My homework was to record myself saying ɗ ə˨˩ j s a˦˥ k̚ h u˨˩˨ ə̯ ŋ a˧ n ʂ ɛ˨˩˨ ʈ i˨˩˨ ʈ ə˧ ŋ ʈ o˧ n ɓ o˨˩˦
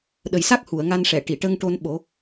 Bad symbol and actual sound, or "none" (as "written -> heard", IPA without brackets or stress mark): none